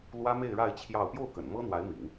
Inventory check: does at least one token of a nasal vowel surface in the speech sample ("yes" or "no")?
no